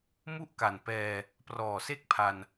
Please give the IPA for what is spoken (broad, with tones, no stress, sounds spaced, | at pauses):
m u˥˩ ʔ k a˨˩ n p ɛː˧ | p r ɔː˨˩ s e˥˩ k̚ pʰ a˧ n